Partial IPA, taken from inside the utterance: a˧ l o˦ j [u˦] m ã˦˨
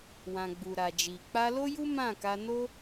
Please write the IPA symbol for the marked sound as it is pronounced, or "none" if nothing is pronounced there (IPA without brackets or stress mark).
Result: u˦